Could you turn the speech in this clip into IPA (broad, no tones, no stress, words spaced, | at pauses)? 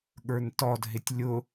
ɠə˞ntɔd ɦɪtʲlʲʊ